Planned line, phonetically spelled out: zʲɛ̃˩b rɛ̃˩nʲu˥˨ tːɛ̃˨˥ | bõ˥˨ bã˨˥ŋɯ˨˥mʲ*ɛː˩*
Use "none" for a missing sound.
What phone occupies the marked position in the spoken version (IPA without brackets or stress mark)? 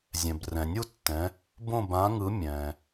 ɛ̃ː˩